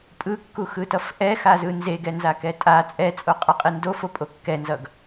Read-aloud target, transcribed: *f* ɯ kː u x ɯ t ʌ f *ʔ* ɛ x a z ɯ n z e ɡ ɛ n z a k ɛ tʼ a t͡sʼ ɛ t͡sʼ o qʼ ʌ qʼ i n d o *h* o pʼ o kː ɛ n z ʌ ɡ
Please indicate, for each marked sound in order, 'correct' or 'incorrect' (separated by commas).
incorrect, correct, incorrect